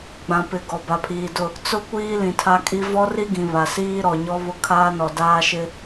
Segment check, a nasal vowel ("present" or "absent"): present